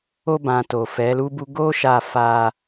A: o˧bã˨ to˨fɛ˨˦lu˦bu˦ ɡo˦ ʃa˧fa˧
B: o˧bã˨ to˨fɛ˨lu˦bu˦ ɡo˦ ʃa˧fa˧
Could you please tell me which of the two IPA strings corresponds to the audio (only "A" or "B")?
A